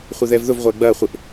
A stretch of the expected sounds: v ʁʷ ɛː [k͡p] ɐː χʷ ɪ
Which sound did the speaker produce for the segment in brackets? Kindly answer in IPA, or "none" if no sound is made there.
ɡ͡b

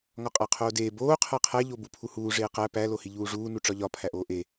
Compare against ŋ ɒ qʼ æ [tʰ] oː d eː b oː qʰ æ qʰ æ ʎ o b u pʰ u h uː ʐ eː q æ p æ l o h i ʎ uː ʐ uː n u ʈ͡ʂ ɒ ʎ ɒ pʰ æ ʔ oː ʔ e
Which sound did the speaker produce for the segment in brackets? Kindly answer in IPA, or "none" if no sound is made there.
qʰ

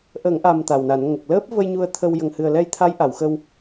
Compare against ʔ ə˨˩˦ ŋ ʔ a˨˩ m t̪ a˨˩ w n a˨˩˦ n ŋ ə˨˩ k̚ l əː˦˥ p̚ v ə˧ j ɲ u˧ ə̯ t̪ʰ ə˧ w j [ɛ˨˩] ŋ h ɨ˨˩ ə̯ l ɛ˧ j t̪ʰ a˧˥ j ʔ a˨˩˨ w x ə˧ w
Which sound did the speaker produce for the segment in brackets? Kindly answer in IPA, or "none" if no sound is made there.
ə˨˩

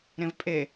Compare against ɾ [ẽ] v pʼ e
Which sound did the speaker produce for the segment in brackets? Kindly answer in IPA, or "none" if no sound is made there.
ẽ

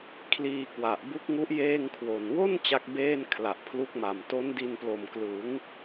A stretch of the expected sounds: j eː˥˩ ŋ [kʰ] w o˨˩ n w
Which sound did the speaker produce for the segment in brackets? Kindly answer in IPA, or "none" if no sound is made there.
kʰ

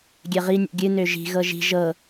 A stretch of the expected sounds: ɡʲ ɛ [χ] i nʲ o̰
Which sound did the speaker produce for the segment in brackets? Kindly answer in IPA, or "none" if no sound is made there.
ʁ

